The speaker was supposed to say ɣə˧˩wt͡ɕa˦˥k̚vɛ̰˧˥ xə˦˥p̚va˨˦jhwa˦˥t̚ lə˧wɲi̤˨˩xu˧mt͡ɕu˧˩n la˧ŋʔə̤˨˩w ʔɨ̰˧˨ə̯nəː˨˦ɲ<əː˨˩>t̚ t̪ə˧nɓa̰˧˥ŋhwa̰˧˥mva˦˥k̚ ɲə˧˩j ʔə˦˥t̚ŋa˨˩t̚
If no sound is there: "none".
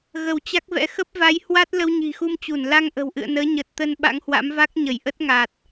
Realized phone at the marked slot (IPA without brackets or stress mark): əː˨˩